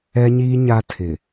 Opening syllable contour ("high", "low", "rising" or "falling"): high